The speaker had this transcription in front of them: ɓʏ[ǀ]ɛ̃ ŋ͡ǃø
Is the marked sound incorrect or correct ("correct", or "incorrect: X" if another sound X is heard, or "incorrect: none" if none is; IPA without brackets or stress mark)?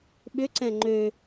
correct